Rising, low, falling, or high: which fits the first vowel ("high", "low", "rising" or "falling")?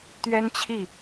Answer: high